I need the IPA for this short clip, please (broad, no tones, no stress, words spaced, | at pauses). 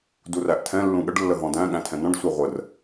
duræʔtʰɛ̃ lːũɠəɖ lːəɦɔ̃dæ̃ ɠæ̃tʰɛ̃nɔ̃ɖ sʷɛʁʷər